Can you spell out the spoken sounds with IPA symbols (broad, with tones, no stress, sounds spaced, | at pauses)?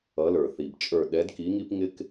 ʌ˨˦ l ə˞˩ θ i˩ b t͡ʃʼ ə˞˧˩ ɗ ɛ˨˦ d k i˨˦ ŋ i˦ p ŋ ɪ˦ k